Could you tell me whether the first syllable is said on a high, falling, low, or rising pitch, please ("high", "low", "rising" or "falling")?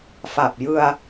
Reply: low